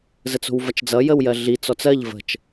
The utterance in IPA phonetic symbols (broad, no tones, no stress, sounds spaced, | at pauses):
z ə t͡s o̤ w v ɐ t͡ʃ d͡z ʌ j ə w j ɜ ɮ i t͡s ɔ t͡s ɜ ʎ v ə̤ t͡ʃ